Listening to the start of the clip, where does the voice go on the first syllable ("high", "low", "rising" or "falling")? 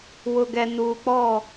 low